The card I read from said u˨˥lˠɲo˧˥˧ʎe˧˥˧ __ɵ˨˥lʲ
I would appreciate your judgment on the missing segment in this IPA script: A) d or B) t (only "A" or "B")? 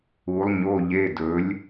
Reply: A